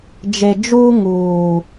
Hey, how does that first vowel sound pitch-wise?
low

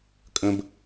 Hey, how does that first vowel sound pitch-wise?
low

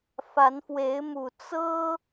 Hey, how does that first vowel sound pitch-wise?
rising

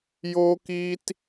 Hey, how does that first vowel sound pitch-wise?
high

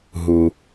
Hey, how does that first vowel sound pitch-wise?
low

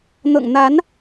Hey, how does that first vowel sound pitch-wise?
low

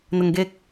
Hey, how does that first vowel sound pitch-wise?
low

